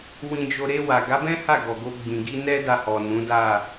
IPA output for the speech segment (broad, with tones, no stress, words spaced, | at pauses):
wĩ˧d͡ʒo˧ ɾe˧wa˨ɡa˨˦bɛ̃˦ ha˦˨ɡɔ˨ɡo˧ɡ͡bĩ˨ ɡi˧nɛ˦ da˧hɔ˨ nũ˨˦da˦˨